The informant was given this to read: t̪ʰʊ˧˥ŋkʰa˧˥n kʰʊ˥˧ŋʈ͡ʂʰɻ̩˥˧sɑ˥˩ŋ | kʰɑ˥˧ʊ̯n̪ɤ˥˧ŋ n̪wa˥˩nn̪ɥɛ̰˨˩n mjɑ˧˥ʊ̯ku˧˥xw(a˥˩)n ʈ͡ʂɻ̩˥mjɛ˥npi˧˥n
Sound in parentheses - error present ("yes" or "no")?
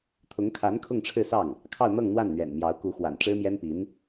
yes